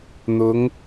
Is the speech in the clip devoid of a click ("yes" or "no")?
yes